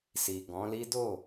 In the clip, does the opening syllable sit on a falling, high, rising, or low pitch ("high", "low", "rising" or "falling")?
low